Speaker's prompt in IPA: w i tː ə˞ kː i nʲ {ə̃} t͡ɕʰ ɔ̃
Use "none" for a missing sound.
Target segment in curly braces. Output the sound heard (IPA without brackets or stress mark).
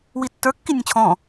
ə̃